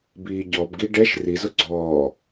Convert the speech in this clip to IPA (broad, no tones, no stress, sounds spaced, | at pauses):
b iː ɟ ɔ b ɡ i ɖ ɛ ʃ r i z ʊ ɡ͡ǀ ɔː